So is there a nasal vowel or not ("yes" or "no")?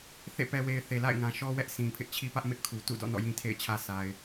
yes